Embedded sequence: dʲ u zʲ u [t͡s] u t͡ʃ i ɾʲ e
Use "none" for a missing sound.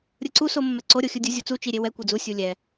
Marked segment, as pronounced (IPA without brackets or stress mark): t͡s